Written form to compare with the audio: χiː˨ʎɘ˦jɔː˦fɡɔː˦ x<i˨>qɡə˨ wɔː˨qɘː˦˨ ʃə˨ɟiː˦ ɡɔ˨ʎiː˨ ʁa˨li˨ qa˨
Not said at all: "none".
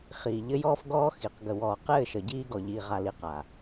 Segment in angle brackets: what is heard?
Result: i˨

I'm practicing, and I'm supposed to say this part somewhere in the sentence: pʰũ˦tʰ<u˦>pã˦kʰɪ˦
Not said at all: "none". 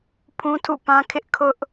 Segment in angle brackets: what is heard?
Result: ṵ˦˨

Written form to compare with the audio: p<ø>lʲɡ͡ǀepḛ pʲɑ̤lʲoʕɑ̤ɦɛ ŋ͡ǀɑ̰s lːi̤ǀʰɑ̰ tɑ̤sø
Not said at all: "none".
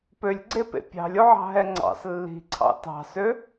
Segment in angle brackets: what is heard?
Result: ø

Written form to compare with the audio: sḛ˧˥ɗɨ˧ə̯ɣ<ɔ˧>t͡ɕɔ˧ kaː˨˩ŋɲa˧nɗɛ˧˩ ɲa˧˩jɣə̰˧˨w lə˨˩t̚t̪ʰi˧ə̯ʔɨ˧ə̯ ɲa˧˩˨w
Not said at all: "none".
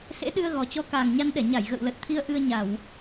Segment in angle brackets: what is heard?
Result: ɔ˨˩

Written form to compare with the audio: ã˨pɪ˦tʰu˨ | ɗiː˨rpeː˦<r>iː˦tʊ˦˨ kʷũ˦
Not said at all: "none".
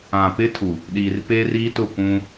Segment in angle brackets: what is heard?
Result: r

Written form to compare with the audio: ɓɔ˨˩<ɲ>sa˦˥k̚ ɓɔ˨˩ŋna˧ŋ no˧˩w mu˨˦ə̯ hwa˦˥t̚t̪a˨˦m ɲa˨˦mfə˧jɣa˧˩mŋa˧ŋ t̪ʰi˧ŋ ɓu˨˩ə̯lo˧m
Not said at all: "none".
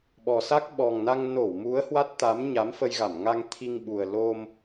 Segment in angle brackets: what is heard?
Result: none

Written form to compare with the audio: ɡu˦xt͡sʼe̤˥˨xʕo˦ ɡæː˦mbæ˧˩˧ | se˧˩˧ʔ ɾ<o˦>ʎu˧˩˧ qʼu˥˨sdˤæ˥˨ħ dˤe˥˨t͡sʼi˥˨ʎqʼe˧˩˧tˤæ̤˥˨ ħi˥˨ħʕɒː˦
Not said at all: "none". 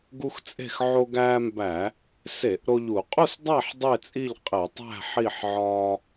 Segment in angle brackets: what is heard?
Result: o˦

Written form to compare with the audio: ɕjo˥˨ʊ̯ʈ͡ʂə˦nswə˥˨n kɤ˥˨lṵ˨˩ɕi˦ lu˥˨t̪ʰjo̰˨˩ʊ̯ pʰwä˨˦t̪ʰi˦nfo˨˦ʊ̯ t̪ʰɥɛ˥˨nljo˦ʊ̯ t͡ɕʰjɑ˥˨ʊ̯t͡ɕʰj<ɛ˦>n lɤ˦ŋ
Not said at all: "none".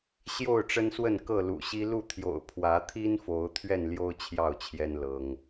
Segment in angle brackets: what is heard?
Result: ɛ˦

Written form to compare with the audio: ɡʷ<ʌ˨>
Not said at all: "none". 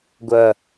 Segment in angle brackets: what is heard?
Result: ʌ˨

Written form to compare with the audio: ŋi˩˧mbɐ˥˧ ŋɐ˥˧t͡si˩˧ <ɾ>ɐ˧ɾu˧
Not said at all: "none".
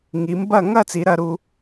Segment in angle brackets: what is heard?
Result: ɾ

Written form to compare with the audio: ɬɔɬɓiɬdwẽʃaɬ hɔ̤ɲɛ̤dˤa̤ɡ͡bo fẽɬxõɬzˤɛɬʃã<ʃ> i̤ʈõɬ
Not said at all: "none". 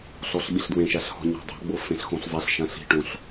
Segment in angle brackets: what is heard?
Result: ɬ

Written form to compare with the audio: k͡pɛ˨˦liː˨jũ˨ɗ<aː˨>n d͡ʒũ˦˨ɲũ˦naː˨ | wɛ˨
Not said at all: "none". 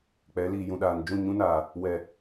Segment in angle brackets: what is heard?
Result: aː˨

